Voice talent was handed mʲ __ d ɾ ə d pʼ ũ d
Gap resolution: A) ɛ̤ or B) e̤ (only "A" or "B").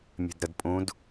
B